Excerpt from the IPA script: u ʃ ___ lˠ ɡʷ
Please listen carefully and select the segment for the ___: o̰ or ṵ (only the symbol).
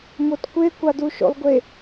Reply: o̰